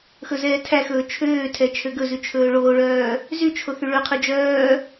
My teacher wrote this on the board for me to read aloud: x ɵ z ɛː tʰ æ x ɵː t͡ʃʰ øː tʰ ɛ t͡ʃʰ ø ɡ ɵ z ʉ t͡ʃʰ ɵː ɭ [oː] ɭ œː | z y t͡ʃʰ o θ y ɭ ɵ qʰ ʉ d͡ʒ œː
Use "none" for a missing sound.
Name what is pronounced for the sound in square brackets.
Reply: oː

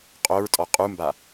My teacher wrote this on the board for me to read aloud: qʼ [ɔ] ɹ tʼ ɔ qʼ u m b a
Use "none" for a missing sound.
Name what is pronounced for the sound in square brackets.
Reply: o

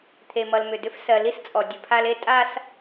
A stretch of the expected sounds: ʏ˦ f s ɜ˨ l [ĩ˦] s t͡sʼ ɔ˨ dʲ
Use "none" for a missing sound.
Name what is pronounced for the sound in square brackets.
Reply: i˦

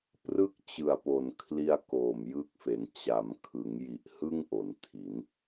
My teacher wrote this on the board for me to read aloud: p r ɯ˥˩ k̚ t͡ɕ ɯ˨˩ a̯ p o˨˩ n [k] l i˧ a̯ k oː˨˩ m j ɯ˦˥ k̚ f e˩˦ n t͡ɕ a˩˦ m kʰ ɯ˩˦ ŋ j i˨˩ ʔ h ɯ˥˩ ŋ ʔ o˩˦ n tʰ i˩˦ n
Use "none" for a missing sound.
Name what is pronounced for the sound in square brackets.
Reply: kʰ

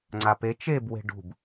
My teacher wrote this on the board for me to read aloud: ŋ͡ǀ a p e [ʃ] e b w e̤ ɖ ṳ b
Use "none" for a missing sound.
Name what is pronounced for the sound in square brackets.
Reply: t͡ʃ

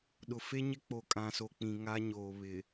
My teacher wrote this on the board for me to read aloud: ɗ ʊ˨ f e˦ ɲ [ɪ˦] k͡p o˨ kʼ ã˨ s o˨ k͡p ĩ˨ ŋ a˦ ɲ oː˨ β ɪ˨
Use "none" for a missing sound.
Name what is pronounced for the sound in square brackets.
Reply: ɪ˦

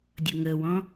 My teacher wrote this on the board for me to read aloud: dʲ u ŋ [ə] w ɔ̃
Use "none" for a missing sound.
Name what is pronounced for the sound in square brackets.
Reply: ə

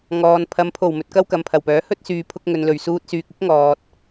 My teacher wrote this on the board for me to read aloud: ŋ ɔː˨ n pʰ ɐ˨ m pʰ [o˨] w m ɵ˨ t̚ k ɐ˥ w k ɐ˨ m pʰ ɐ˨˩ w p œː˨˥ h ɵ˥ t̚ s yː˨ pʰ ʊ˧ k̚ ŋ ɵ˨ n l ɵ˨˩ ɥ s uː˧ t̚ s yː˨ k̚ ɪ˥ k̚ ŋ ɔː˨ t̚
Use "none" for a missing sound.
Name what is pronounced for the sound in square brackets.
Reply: o˨˩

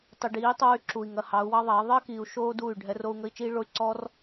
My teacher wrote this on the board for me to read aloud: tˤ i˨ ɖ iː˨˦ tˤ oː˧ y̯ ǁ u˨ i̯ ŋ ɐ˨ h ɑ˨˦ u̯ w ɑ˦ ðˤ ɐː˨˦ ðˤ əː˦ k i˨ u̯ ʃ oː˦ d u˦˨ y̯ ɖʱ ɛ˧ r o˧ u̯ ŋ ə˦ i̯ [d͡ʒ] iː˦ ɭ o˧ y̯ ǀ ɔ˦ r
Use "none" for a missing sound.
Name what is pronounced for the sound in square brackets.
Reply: t͡ʃ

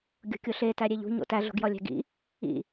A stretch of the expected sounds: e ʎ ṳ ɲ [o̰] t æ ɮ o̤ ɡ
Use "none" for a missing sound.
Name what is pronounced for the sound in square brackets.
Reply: o̰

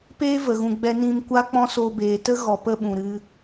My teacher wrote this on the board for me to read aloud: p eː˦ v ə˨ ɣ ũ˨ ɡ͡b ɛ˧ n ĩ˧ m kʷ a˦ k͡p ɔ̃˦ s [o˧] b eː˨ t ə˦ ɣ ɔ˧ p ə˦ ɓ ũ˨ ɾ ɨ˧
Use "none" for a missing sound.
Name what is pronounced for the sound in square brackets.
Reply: o˧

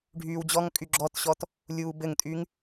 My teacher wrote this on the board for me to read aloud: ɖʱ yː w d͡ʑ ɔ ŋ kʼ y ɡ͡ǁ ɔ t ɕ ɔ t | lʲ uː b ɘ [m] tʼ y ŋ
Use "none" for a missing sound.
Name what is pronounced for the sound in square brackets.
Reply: ŋ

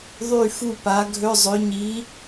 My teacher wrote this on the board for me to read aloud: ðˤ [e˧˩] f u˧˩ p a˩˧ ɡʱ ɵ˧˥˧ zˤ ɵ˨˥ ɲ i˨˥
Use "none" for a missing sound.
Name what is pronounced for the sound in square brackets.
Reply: y˧˩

